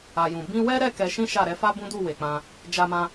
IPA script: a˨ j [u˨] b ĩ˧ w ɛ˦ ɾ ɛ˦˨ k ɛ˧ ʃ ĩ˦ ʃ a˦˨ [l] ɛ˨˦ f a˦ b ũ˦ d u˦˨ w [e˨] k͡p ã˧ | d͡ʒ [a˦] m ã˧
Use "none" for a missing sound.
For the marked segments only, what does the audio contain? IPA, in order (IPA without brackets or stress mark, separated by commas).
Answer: ũ˨, ɾ, e˨, a˧